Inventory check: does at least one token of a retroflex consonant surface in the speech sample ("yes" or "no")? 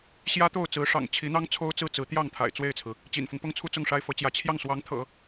yes